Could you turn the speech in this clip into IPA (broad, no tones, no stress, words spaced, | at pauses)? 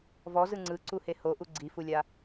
vɔzɯ ŋ͡ǀɯǀuhe hoʔu ɡ͡ǀifulʲa